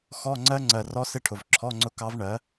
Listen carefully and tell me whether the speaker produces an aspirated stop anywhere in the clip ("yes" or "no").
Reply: yes